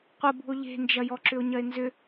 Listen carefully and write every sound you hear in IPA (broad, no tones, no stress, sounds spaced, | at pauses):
qʷ ə b ṳ o̯ ʎ e̤ n d͡ʒ ɐ j ɔ ǁ ʏ o̯ ɲ ɐ e̯ n z ʏ